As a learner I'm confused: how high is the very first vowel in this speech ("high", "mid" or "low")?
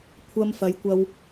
low